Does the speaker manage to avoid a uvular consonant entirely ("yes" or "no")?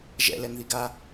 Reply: yes